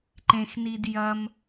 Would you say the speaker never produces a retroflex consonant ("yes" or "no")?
yes